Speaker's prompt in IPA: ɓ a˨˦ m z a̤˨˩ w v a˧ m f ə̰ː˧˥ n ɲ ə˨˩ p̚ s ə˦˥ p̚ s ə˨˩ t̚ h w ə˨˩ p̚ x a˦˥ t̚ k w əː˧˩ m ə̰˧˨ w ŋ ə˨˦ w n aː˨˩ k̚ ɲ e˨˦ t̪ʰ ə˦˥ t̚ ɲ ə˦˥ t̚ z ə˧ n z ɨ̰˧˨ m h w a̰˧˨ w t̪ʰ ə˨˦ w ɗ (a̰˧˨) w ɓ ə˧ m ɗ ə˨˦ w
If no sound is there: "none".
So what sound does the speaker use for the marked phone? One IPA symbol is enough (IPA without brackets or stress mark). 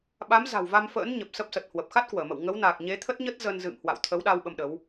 a˧